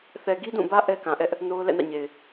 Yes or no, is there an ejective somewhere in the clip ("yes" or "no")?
no